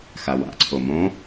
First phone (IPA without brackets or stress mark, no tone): x